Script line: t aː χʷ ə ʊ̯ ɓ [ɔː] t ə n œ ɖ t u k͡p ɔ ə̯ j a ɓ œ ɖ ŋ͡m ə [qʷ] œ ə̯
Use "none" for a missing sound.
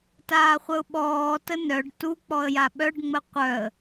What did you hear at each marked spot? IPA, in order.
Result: ɔː, qʷ

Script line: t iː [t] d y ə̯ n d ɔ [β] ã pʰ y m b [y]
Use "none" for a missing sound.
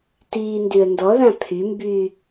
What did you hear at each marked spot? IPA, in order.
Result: n, ð, y

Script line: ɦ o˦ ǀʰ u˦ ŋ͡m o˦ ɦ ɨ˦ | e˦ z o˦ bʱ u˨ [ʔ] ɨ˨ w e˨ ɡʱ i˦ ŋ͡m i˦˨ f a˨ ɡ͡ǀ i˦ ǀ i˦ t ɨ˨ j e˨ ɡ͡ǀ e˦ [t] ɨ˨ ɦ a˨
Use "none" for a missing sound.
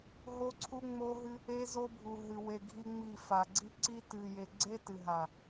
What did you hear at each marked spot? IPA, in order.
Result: ɦ, t

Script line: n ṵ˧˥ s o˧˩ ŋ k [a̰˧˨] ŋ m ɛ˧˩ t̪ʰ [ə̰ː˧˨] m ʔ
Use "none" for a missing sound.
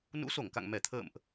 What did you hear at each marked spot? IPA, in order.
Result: a̰˧˨, ə̰ː˧˨

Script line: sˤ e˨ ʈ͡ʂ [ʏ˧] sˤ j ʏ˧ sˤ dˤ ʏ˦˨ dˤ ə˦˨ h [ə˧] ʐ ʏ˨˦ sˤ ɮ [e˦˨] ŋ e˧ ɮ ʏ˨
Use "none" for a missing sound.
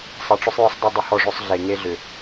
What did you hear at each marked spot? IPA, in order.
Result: ʏ˧, ɔ˧, e˨

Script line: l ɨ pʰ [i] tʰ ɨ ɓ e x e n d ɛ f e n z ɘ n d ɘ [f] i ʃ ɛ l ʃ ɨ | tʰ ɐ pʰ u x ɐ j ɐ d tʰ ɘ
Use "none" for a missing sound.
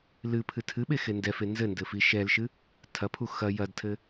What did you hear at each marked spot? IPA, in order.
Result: ɨ, f

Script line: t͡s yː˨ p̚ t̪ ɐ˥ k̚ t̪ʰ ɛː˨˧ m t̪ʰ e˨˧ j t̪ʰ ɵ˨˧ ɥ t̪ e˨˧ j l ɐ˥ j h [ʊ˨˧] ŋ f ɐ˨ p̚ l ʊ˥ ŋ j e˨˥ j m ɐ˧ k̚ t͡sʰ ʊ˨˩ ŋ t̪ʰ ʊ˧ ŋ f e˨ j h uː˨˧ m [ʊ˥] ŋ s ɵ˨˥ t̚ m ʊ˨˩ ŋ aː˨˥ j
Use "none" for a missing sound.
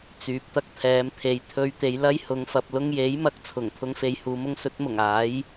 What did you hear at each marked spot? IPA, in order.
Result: ʊ˨˧, ʊ˥

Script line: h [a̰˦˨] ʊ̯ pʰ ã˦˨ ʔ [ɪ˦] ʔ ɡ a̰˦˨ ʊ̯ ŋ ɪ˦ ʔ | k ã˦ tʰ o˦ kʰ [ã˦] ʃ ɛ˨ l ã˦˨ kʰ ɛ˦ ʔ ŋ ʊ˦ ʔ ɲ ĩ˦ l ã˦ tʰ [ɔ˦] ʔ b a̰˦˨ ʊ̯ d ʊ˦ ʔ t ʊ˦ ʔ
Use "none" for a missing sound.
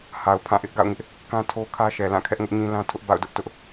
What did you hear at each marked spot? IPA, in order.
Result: a˨, ɪ˦, ä˦, ʊ˦

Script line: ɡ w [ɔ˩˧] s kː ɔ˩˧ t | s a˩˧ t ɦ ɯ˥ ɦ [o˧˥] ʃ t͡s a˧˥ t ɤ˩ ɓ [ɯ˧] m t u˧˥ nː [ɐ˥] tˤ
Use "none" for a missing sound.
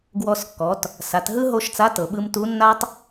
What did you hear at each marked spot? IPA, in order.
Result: ɔ˧, o˥, ɯ˧, a˥

